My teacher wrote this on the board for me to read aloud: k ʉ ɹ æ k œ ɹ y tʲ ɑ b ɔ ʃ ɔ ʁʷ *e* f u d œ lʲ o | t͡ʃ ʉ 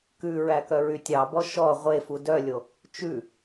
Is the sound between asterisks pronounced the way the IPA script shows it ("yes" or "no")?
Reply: yes